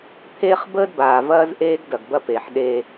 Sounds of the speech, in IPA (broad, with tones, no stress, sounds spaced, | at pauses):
t̪ʰ eː˦ χ b əː˦ d b aː˨ v ɐː˦ z ʔ eː˦ ɡ d ɐ˨ ɡ b ɐ˦ p eː˨ ħ ɗ e˦